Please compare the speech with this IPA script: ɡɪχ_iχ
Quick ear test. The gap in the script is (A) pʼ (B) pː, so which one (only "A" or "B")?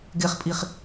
A